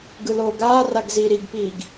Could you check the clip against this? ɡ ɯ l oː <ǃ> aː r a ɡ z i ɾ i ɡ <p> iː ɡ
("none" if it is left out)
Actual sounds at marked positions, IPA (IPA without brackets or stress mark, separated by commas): ɡ, p